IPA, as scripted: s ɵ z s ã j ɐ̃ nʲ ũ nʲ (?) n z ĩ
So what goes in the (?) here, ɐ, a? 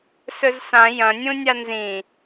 a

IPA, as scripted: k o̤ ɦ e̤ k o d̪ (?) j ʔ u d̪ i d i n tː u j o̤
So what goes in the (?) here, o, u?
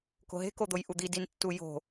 o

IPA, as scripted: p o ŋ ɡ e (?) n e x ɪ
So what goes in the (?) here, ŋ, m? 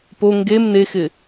m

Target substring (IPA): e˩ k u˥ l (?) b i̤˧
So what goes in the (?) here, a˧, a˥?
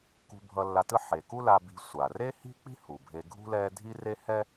a˧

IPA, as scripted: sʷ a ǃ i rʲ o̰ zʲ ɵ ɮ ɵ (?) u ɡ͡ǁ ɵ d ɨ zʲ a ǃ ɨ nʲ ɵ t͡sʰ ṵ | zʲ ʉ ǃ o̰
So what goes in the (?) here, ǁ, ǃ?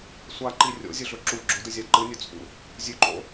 ǁ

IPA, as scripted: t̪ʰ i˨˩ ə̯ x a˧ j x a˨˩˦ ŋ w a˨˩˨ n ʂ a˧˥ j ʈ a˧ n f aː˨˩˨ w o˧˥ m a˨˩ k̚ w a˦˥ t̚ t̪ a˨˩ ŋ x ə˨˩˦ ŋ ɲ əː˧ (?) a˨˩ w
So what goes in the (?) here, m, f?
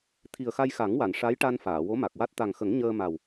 m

